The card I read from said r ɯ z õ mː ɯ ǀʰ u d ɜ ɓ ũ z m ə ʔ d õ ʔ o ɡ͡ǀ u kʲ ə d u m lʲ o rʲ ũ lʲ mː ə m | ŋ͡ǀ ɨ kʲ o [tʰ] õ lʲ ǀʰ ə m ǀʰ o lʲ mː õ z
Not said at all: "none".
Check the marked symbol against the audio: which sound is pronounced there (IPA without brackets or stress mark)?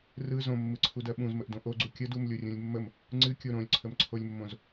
ɾ